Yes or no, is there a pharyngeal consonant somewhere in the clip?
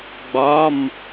no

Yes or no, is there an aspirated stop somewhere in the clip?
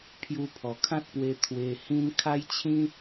yes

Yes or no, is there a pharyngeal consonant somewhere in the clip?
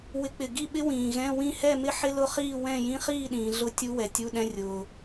yes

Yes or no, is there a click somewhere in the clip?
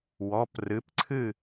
yes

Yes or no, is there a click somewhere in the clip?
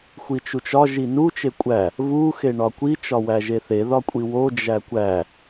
no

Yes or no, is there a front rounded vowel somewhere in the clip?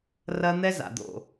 no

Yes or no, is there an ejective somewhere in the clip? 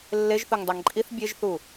yes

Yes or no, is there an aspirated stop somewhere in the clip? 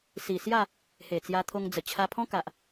yes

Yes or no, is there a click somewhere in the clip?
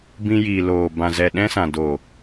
no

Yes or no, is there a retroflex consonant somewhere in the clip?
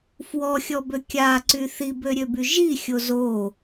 no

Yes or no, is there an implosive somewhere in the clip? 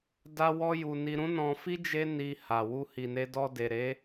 no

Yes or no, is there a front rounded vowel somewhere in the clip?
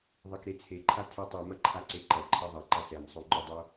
yes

